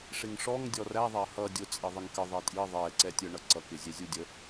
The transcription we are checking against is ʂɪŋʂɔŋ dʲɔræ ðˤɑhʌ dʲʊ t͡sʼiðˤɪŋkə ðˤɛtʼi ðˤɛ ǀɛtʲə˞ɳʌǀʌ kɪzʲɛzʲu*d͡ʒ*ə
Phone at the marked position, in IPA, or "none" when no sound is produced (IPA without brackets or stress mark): dʲ